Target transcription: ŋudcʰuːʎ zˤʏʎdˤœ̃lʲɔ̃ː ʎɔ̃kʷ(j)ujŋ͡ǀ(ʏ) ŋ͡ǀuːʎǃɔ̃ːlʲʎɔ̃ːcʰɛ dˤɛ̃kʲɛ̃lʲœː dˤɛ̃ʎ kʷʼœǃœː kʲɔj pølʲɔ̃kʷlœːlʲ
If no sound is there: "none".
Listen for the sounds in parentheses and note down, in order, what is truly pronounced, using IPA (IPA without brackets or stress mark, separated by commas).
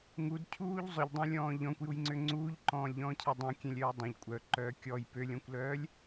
j, ʏ